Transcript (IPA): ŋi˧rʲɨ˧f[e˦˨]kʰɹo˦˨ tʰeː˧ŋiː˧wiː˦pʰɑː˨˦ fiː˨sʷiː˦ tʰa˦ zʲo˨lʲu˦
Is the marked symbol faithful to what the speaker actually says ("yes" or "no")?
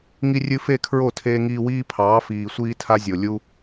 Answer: yes